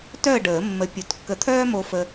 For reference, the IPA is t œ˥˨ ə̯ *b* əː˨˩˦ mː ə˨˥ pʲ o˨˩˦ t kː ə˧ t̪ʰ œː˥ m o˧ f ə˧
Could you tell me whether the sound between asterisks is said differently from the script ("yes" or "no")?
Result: yes